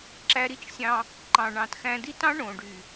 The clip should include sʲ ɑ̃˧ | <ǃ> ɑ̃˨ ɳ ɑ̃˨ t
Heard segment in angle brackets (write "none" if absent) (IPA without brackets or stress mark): ǃ